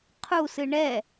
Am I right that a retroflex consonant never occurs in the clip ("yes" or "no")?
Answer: no